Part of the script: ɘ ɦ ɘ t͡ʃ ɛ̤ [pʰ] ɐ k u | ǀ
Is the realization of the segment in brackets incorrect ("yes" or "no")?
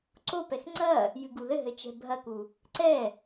yes